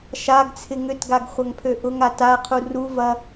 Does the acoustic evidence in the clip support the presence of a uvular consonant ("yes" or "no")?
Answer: yes